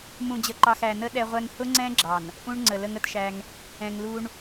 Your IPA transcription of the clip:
m ũ˨ d͡ʑ ə˨ ǃ ɑ˨ x æ˨ n ə˦ ɗ ɛ˦ ʁʷ ɛ˦ ŋ h ʊ˦ ŋ͡ǀ ɛ̃˦ ɡ͡ǁ ɑ˨ n | ʔ ũ˦ ɳ ŋ͡ǀ ə˨ l ə˦ ŋ ə˦ t ʃ æ˦ ŋ | ɛ̃˨ ŋ l u˦ ɳ

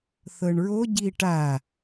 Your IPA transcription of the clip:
θ ɤ ɳ ɹ o ɟ i ʈ a

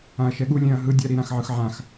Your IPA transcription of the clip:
ã ɐ̯ ʃ ɛ ɠ u lʲ ɛ̃ ɐ̯ ɦ ɯ dʲ a ɾ i ɾ ã x ʕ ɯ x ʕ ã x

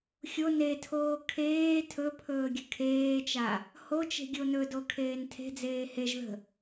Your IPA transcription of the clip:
xʲ o n e tʰ oː kʰ eː tʰ ɵ pʰ ɵː ɡʲ ə̤ kʰ eː t͡ʃ a | h o t͡ʃ e̤ ɡʲ o n ɵ d o kʰ eː n tʰ e̤ d͡z eː h e ʒ ð ə̤

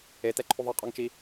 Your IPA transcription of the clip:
e t ɛ ǃʰ u ðˤ e qʼ ɔ ŋ t͡ʃ i

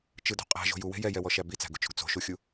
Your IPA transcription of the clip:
t͡ʃ ɯ d o̤ qʼ æ̤ ʒ o̤ j u w e̤ j ɛ j ɛ w ɔ ʃ æ b i t͡s æ̤ ɡ u t͡ʃ o̤ ɡ t͡s o̤ ʃ u xʲ u

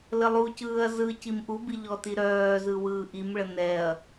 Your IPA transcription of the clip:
l ə lˠ u c ɯː ɐ̯ z ɯ c i m ʔ u b i ʎ ɔ t i ɾ œː z ɯ w ɯː ʔ i m ɭ ə n ɛ ɐ̯

